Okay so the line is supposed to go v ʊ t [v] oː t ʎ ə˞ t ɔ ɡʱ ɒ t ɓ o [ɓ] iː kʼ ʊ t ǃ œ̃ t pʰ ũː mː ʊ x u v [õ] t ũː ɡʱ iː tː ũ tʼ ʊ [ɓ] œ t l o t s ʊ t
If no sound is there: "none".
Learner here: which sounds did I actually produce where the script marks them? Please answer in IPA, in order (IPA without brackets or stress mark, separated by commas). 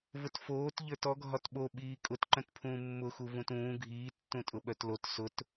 f, ɓ, ũ, ɓ